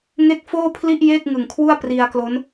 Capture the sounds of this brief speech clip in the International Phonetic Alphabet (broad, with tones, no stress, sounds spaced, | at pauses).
ŋ e˥˩ k̚ f oː˥˩ pʰ l i˥˩ ʔ j eː˥˩ k̚ ŋ ɯ˨˩ ŋ kʰ w u˥˩ a̯ p r i˧ a̯ k l o˦˥ n